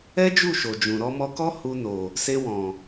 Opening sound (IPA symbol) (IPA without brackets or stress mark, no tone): ɛ